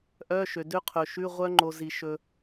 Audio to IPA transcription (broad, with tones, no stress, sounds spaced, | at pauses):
ʔ œ˧˥˧ ʃ ø˨ d ø˦˥ qʰ ɵ˨ ʃ ʉ˧˥˧ ʁʷ œ˦˥ ŋ͡ǃ o˨ z i˨ ʃ ɵ˨